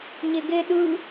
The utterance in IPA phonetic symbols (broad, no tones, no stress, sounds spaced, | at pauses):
ɲ e ɡ e ɗ ɯ